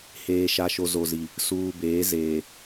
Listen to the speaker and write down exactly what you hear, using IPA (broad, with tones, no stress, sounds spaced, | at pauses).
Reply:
h eː˨ ʃ a˨ ʃ o˨ z o˨ z i˨ | s uː˨ b eː˨˦ z eː˨